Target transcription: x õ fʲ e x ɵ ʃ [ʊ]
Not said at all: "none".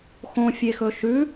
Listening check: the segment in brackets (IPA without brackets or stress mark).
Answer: ʉ